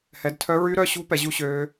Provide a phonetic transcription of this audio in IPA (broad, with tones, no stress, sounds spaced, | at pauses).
h ɛ˨˦ d tʰ œ˦˥ ɹ y˦˥ ɾ œ˦˥ ɕ ṳ˦˥ p ɛ˨˦ ʑ u˦˥ ɕ øː˦˥